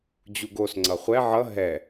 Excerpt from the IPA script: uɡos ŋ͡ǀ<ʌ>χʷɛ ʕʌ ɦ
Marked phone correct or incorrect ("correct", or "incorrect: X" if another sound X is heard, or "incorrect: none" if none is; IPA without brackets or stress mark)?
correct